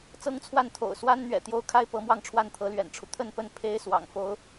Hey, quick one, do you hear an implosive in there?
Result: no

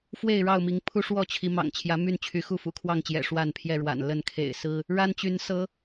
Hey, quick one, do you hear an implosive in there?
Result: no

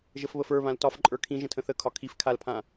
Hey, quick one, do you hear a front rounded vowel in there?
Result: no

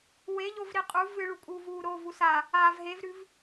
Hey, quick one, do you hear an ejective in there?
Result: yes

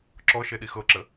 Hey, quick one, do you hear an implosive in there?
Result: yes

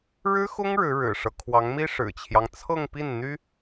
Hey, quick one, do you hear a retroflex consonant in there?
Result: yes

